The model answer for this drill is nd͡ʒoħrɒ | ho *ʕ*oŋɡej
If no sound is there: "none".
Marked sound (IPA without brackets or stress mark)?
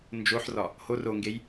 r